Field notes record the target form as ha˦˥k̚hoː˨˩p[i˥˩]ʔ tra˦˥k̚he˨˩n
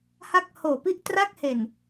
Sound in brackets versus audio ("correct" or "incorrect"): incorrect